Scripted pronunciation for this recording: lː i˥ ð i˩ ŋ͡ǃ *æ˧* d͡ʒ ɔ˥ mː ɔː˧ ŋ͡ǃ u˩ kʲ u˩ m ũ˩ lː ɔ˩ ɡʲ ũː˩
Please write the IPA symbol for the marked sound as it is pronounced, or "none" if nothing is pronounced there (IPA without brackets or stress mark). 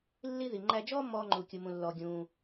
æ˧